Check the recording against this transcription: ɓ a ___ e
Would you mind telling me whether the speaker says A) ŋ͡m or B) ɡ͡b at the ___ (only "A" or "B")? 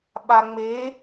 A